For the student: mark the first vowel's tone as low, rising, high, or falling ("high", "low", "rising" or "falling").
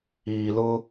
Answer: low